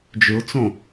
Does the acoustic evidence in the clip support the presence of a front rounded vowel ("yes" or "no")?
yes